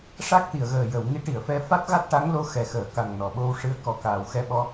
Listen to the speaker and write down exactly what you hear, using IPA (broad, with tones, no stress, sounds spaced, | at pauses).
ʂ a˦˥ k̚ t̪ i˨˩˨ ə̯ ɣ əː˨˩ j ə˨˩˨ w ŋ i˧˥ ʈ i˨˩˨ ə̯ f ɛ˧ f a˦˥ t̚ ɣ a˦˥ t̚ ʈ a˧˥ ŋ l o˧˥ x ɛ˨˩ x əː˨˩˨ k a˨˩ ŋ n ɔ˨˩˨ ɓ o˧ w ʂ ɨ˧ ə̯ k ɔ˨˩ k aː˨˩ w x ɛ˧ ɓ ɔ˧